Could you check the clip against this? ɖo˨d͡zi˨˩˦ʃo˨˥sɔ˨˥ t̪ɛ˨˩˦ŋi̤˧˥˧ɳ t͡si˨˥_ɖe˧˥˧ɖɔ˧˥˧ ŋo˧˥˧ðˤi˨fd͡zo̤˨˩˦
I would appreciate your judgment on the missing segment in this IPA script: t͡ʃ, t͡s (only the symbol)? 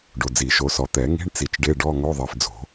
t͡ʃ